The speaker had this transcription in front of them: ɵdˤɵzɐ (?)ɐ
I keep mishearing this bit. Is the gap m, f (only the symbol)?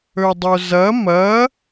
m